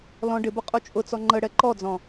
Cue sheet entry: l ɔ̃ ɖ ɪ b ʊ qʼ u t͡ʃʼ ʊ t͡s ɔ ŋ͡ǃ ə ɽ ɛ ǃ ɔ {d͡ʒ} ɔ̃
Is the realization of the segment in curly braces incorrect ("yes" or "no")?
yes